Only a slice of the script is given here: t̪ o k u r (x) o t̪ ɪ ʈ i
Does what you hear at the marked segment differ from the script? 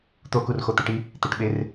no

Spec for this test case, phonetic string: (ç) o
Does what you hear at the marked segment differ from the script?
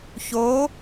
no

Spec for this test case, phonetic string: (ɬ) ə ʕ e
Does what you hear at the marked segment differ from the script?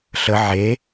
no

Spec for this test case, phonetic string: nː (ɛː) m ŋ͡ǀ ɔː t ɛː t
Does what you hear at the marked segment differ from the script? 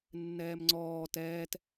no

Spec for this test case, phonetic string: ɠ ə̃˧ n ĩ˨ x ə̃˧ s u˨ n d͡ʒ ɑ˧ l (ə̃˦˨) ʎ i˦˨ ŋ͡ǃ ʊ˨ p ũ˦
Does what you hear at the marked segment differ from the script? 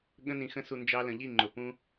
yes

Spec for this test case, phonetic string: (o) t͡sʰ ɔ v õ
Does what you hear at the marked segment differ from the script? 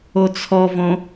no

